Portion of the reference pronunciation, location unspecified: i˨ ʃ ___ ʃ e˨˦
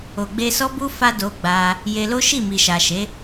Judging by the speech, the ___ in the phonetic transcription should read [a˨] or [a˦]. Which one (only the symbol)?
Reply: a˨